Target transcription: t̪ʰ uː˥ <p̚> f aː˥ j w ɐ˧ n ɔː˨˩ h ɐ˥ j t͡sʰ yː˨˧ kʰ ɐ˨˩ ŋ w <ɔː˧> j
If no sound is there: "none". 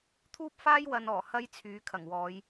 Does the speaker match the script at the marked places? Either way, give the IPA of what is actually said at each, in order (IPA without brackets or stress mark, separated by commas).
p̚, ɔː˨˧